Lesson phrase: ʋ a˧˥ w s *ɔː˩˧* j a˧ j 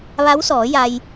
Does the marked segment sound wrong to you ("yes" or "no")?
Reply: no